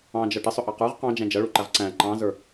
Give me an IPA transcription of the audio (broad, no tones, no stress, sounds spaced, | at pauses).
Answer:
ɑ̃ d͡ʒ ʌ ʈ ə sˤ ʊ ʔ ɑ q ə˞ ʁ q ɑ̃ d͡ʒ æ̃ d͡ʒ ʌ ɭ u ǃ æ ʁ ǀ æ̃ ǃ ɑ̃ z ə˞